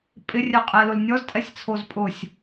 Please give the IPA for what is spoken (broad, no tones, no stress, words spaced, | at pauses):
pʼɪrʲɛqʼɛlʊl nʲɔztʼɛsʲt͡sʰoz pʼʊsʲ